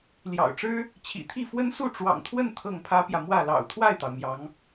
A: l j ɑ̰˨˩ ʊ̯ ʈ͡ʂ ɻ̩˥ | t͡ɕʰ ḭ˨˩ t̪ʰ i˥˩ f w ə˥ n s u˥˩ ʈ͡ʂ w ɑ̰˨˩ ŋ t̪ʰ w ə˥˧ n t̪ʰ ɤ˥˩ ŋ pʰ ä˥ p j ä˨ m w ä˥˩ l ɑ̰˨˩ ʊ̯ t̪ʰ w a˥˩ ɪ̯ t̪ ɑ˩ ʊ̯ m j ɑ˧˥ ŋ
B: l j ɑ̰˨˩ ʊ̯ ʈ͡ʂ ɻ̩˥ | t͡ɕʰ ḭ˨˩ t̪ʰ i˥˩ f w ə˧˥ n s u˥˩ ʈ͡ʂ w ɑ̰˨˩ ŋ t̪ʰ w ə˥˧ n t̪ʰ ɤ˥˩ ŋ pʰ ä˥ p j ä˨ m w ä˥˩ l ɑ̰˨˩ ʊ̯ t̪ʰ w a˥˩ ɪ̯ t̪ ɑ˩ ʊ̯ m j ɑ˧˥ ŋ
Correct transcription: A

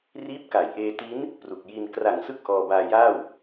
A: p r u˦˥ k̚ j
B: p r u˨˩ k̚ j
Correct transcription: B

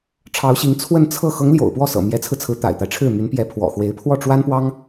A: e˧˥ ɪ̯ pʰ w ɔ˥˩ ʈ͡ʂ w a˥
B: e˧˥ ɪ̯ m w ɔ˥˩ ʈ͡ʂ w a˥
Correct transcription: A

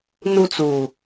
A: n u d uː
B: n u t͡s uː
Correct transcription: B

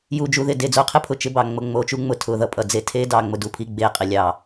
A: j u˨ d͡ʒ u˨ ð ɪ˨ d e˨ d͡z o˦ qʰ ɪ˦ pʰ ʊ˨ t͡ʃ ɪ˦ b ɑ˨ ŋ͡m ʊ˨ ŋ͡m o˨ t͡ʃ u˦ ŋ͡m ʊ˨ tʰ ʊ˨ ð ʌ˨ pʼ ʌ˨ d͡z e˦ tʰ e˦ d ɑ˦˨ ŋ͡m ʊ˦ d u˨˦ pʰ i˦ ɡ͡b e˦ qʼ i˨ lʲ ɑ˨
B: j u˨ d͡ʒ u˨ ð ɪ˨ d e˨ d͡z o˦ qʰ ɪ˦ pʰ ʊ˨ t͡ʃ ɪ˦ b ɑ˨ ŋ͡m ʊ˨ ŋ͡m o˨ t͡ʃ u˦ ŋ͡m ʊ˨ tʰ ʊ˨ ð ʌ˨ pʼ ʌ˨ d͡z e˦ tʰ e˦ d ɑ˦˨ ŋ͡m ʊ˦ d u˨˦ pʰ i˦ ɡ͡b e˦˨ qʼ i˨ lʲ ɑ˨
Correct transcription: B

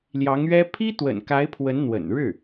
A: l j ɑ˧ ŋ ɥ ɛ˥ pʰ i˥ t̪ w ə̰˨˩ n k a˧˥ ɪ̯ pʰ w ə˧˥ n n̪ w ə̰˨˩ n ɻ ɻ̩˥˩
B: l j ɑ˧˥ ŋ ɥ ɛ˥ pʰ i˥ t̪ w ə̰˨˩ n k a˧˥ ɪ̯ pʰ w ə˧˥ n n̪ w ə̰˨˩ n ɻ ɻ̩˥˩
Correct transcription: B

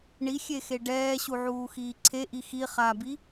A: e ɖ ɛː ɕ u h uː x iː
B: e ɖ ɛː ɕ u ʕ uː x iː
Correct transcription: B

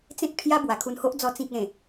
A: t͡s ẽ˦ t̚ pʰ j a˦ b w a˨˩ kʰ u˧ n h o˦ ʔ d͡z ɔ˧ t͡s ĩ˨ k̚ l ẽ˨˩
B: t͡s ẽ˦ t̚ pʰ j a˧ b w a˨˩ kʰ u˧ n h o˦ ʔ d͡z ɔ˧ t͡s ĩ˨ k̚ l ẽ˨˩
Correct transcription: A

